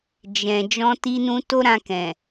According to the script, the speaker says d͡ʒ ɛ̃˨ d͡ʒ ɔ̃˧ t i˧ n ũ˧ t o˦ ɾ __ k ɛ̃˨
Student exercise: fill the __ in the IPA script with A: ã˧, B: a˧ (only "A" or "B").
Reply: A